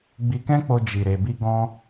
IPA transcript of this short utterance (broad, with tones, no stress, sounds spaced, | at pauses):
ɡ͡b i˧ k ɛ̃˦ k͡p o˧ d͡ʒ i˨ ɾ e˨ b i˧ ɡ ɔ̃˦